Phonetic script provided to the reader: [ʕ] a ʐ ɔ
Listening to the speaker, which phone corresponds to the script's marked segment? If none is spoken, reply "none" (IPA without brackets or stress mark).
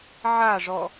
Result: ʕ